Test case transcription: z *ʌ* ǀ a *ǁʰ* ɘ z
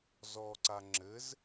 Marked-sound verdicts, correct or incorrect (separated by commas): incorrect, incorrect